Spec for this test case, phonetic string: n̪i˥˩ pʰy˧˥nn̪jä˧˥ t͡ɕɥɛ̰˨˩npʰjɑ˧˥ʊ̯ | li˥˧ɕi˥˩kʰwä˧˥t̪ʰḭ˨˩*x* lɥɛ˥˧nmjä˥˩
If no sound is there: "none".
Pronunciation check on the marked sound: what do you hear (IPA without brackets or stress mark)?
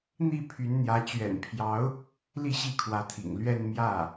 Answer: ŋ